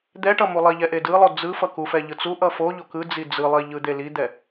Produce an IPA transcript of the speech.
d̪ ɛ ʈ ʌ m u lˠ i ʎ ɛ ʔ e d ɯ lˠ o d͡z ɯ f ʌ k u f ɛ ʎ ɯ t͡s u ʔ ʌ f o ʎ o k ɯ d͡z i d͡z ɯ lˠ i ʎ ɯ d̪ e l i d̪ ɛ

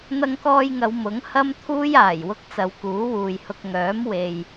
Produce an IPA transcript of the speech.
n̪ ɐ˧ ŋ k ɔː˧ j ŋ ɐ˨˧ w m ʊ˨˥ ŋ h ɐ˥ m t̪ʰ uː˥ j aː˨˩ j w ʊ˧ k̚ t͡s ɐ˨˧ w k uː˨˥ w uː˨ j h ʊ˧ k̚ ŋ œː˨˥ m w e˨ j

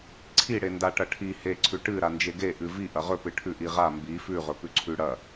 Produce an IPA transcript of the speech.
ǀʰ i ɽ e n d a ʈ ɐ ʈʰ i h e ǀʰ ʉ ʈ ɨ ɾ a n d͡ʒ e ɡ e ʔ ɨ v i ʔ ɐ ʁ ɵ p ɨ ʈʰ ʉ ʔ i ʁ a m b i f ʉ ʁ ɵ p ʉ ǀʰ ʉ ɽ ɐ

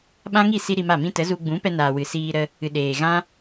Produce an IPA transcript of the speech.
ɓ ã˦ ŋ i˦˨ s i˦ ɾ i˧ m a˦˨ m ĩ˦ t ə˨˦ z u˧ ɡ͡b ũ˨˦ p ɛ˧ n aː˨ w ɨ˨ s iː˧ ɾ ə˧ | ɨ˨ ɗ eː˨ ɣ ã˦

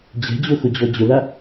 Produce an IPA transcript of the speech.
d͡ʑ ɛ̤ d͡ʑ o x ʊ d͡ʑ ɔ d͡ʑ ʊ l a

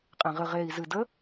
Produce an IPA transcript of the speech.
qʼ ẽ ʁ ɨ ʁ e i̯ z ɨ d ə

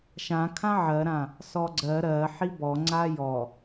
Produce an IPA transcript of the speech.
ʃ ã kʰ ã ʕ ɜ ɾ ã | s ɔ ɡ͡ǀ ɜ ɾ ɜ ħ i b ɔ ŋ͡ǀ a j ɔ

